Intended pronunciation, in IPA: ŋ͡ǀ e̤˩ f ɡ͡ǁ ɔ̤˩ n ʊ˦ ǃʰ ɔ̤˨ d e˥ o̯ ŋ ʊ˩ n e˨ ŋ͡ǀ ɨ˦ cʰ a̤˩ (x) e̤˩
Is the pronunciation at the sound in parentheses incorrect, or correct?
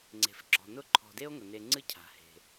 incorrect